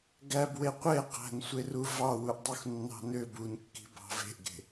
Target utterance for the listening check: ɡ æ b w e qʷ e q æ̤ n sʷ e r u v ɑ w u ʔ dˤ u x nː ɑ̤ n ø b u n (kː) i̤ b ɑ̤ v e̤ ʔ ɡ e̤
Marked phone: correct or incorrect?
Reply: correct